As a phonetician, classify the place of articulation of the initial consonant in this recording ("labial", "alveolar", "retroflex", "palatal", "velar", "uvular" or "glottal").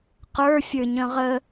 uvular